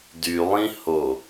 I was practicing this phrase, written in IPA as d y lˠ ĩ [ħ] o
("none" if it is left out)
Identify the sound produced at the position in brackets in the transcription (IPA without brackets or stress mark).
h